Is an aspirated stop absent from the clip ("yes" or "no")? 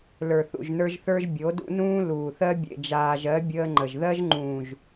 yes